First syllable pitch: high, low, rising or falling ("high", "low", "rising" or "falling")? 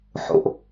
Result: low